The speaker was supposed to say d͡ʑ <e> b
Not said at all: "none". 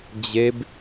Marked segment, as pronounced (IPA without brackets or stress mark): e